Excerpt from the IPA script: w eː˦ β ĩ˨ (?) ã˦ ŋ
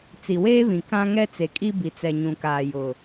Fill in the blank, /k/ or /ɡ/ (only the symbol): k